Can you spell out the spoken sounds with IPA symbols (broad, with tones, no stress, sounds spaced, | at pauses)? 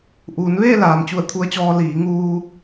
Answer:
ʔ uː˩˧ n ʋ eː˥˨ l aː˩ m t͡ɕ u˧˩ ə̯ t̪ʰ u˧ ə̯ t͡ɕ ɔː˧ l iː˩˧ ŋ uː˧